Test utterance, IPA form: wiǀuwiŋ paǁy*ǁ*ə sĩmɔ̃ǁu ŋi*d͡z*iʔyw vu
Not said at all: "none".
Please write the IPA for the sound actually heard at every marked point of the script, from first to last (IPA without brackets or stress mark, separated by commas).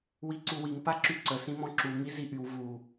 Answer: ǀ, z